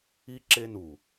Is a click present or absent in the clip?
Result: present